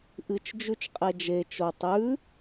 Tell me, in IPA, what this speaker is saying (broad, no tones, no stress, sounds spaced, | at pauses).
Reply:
ʔ ɨ t͡ʃ d͡ʒ ʉ t͡ʃ qʼ e d͡ʒ e t͡ʃ o tˤ ʉ